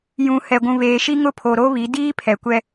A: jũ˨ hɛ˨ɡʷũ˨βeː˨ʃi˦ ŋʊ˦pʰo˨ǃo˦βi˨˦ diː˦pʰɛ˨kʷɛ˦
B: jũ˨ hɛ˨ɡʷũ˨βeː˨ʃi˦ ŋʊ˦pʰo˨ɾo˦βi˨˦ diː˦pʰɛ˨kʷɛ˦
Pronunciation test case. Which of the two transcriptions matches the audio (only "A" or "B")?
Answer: B